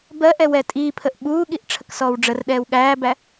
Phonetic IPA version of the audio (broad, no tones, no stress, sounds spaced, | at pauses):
b ɜ ʔ ɛ w ɛ tʼ iː pʰ ə ʔ ɓ uː ɠ i ʔ ʈ͡ʂʰ ə k s ɔː w ɖ͡ʐ ə r ɗ ɛː w ɠ æː b æ